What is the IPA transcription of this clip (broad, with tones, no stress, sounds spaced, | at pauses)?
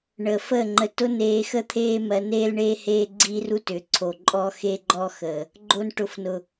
ɳ əː˨ f əː˦˨ ŋ͡ǃ ə˧ t ʊ˦ n eː˧ x ə˦ t̪ʰ eː˦ m ɜ˧ n eː˦ l ɳ eː˦ h eː˦ ɡ͡ǀ i˦ r u˦ t ʏ˨˦ ǀʰ o˨ ǃʼ ɔː˦ x e˦ ɡ͡ǃ ɔ˦ x əː˨ | ɡ͡ǃ o˧ n ʈ ʊ˨ f n ʊ˨